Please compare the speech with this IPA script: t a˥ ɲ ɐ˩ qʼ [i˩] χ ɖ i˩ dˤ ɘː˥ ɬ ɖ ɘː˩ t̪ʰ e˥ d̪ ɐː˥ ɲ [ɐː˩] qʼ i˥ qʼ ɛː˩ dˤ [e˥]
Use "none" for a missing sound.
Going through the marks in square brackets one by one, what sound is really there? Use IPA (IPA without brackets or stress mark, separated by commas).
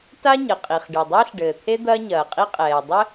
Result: i˩, ɐː˩, ɘ˥